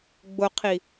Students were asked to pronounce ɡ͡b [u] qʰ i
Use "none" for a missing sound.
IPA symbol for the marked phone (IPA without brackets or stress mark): ʊ